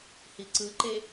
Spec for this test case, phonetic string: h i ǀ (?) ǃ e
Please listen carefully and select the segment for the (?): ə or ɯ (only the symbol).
ɯ